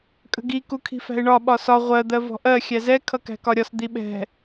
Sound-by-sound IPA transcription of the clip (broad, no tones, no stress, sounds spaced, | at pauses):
kʼ ə̤ ɡ i k u kʰ i̤ f æ̤ ɪ̯ ɳ ɒ ɓ ɒ s ɒ ʁʷ ɜ d̪ ɜ v ɔ̤ ʔ ɜ xʲ æ z ɛ kʰ ʌ k æ̤ k ɒ ɾʲ ɒ s d̪ i ɓ ɛ̤